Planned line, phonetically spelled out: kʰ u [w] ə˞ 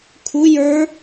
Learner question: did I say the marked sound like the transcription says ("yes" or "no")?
no